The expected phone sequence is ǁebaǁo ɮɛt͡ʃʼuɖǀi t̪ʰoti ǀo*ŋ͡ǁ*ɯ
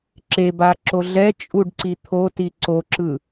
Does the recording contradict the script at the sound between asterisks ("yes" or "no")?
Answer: yes